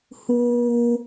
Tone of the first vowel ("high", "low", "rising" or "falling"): high